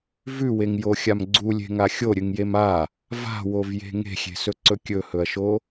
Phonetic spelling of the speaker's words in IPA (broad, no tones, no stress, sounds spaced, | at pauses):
v ʉ w e ŋ j o xʲ a m ɡ͡ǀ u lʲ e̤ ŋ a xʲ o ɾʲ ɨ ŋ j e m a | v a̤ w o v j e̤ ŋ e̤ xʲ e̤ s ɵ ǀ ɵ kʲ ɵ h ɵ ɐ̯ ʃ o